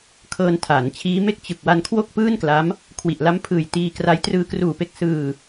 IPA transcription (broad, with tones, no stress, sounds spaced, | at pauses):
kʰ ɤː˧ n tʰ aː˩˦ n t͡ɕʰ iː˦˥ m e˥˩ k̚ t͡ɕ ɯ˨˩ k̚ w a˧ n kʰ w o˥˩ k̚ p ɯː˥˩ n k l a˦˥ m | kʰ w i˨˩ ʔ l a˦˥ m pʰ ɯː˨˩ j t iː˧ k r a˦˥ j t r ɯː˧ k r uː˨˩ p e˦˥ k̚ s ɯː˧